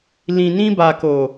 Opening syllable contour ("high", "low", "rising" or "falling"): low